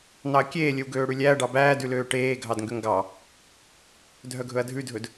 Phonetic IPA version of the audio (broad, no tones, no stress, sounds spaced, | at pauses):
n ɑ ɐ̯ kʲ eː lʲ ɵ w ɡ øː ɽ ʉ lʲ æ ɐ̯ ɖ ɑ b æː d ʉ l øː ʈ eː ɡʱ ɑ d ŋ ɡ ø ŋ ɡ ɑ | dʱ œ ɡʱ ɵ ɐ̯ dʱ ʉ dʱ ɵ d